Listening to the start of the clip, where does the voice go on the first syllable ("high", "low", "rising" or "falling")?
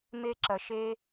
high